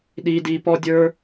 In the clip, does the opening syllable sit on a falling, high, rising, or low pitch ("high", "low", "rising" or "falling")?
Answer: high